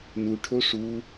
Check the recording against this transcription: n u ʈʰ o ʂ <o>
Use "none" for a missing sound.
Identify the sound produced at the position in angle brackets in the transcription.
u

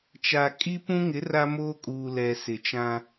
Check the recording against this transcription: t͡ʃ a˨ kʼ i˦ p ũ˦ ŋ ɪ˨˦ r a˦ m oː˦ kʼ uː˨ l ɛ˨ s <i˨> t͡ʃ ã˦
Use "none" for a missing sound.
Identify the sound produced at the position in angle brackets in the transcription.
ɪ˨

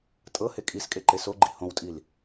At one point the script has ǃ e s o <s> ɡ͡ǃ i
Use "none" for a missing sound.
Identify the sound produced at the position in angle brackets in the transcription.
none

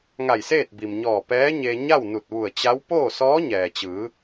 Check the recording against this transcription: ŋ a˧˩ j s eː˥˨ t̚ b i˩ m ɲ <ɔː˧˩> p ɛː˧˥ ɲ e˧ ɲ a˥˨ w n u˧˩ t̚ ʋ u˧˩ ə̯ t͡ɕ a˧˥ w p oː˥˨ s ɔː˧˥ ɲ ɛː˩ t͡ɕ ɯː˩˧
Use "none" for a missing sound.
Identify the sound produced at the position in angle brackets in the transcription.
ɔː˧˩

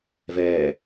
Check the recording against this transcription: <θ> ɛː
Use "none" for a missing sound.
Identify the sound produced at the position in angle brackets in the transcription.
v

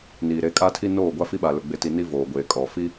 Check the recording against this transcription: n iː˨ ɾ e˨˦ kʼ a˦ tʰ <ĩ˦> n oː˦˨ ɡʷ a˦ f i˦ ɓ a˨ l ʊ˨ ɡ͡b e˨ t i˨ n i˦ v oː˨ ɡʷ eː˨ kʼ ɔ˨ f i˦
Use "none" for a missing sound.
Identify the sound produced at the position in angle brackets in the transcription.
i˦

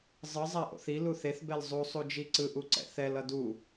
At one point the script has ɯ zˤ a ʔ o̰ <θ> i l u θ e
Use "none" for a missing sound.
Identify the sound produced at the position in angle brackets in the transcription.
θ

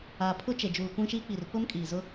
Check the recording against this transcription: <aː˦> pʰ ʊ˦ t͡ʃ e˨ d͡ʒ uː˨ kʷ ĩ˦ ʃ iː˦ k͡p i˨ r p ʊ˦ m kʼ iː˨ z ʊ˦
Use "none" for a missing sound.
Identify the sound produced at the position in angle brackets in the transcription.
aː˨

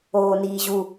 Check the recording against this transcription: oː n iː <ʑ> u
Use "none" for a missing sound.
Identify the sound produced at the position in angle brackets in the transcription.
ʑ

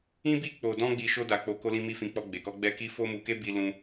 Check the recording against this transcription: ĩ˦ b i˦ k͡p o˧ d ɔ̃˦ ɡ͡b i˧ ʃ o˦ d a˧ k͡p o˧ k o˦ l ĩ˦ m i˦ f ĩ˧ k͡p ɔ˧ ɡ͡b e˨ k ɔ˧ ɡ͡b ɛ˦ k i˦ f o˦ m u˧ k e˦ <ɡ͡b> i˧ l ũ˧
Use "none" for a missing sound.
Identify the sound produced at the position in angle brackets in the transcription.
b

